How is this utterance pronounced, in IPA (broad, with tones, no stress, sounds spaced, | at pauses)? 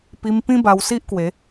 p i˧ m p ĩ˦ b a˧ w s i˦ ʔ k w e˨˦